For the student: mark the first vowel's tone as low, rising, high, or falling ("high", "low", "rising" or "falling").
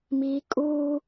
high